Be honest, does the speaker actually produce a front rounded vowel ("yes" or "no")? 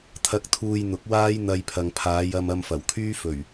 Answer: yes